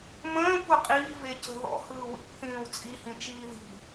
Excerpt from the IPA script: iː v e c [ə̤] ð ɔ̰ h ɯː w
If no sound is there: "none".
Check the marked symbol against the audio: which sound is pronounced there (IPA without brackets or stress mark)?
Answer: ə̤